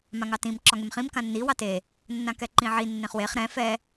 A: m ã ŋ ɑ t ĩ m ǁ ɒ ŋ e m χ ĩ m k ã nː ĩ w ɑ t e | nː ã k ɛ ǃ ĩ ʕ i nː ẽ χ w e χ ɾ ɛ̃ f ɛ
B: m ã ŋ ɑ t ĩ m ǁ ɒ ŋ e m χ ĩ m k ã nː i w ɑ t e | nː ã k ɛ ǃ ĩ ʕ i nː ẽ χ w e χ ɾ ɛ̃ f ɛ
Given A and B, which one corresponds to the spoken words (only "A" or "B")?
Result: B